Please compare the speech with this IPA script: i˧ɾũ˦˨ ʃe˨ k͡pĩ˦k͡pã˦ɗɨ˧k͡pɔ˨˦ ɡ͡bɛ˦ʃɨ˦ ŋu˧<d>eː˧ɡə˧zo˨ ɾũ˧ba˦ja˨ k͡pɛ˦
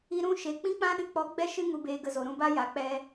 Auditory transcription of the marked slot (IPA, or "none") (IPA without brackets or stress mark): b